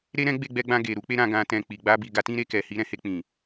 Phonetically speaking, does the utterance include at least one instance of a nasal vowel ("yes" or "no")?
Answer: yes